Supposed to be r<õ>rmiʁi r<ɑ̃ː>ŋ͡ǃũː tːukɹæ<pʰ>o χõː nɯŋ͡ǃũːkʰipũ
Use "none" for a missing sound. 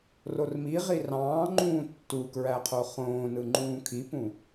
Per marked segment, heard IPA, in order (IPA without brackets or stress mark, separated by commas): o, ɑ̃ː, qʰ